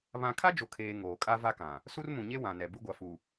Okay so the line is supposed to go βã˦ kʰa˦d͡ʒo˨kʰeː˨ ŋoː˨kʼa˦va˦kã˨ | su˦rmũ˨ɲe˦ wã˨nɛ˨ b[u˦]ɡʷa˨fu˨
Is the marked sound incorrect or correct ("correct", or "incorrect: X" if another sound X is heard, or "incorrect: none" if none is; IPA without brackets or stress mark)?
correct